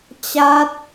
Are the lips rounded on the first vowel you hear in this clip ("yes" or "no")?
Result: no